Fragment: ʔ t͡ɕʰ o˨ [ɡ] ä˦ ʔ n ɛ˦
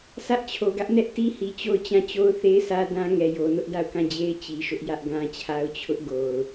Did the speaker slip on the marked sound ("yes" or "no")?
no